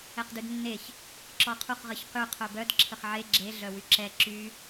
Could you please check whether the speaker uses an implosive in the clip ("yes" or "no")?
no